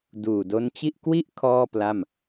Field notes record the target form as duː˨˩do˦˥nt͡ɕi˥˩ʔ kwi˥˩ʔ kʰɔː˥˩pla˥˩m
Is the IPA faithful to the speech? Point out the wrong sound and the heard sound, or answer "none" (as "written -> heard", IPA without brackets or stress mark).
none